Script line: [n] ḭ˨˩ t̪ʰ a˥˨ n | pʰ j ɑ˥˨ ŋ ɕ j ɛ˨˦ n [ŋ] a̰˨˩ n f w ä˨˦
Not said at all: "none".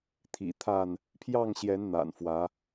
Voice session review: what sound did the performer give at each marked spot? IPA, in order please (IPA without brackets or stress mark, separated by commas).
t̪ʰ, n̪